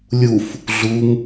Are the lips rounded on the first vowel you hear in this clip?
yes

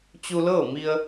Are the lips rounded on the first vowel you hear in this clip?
yes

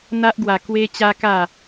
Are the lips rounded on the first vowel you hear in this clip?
no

